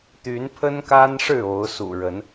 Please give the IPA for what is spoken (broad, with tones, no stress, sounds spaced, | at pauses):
t̪ y˨˦ n pʰ ə˦ n k a˦ n ʂ ɻ̩˥˨ o˨˦ ʊ̯ s ṵ˨˩ ɻ ə˨˦ n